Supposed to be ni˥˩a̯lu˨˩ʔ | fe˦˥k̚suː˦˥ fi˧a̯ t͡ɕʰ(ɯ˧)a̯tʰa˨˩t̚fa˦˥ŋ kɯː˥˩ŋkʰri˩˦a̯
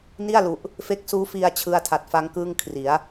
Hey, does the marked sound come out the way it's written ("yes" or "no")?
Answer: yes